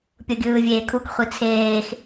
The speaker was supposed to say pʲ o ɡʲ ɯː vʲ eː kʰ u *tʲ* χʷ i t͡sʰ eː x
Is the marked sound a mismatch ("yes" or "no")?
yes